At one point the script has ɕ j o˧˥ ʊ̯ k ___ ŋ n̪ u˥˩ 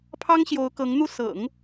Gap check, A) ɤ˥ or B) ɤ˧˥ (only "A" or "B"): B